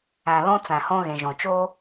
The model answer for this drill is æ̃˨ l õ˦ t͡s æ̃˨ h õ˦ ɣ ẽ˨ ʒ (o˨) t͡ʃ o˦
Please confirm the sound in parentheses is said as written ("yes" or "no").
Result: no